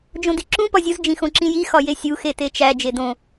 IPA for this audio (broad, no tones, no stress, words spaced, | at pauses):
d͡ʒõdiǁũ pɒzʲuz d͡ʒĩxõǁĩji xɒjesʲu xetet͡ʃæ d͡ʒedõ